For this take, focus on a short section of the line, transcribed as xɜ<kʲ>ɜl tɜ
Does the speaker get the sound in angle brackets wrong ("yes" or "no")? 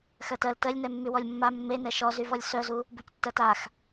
yes